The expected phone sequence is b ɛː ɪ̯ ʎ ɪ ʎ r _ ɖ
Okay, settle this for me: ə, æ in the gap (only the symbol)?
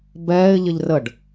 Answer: ə